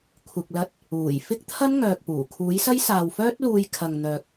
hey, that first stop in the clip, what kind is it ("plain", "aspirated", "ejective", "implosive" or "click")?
aspirated